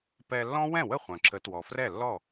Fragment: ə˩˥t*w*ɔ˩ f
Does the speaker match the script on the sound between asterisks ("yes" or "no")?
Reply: yes